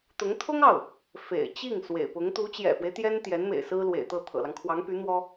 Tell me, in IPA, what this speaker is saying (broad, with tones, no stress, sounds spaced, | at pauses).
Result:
t̪ ʊ˧˥ ŋ t̪ʰ ʊ˥ ŋ ɑ˥˩ ʊ̯ | f ḛ˨˩ ɪ̯ t͡ɕ i˥˩ ŋ s w ḛ˨˩ ɪ̯ p ʊ˧˥ ŋ t̪ u˧˥ t͡ɕ j ɛ̰˨˩ f w e˦ ɪ̯ t̪ j ɛ˥ n t̪ j ɛ˧˥ n m ḛ˨˩ ɪ̯ s ɹ̩˥ l w ḛ˨˩ ɪ̯ t̪ ɤ˥˩ t̪ʰ ɤ̰˨˩ l ɑ˦ ŋ kʰ w ɑ˧˥ ŋ p y˧˥ n̪ w ɔ˥